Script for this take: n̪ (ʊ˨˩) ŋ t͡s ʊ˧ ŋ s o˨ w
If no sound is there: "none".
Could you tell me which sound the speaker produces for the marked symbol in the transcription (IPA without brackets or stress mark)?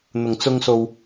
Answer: ʊ˨˩